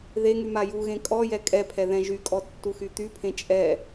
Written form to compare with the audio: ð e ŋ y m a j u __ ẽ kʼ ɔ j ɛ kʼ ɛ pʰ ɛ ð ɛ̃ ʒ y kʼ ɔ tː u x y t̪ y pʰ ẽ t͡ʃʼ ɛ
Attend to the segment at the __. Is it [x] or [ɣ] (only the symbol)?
ɣ